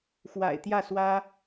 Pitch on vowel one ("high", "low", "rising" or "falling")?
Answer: low